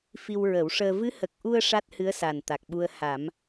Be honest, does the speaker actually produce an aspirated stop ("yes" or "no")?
no